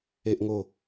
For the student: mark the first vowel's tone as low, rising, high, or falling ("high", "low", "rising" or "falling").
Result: high